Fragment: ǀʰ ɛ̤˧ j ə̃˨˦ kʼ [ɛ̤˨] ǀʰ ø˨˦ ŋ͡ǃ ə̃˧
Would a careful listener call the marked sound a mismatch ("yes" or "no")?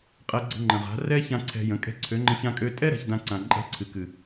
yes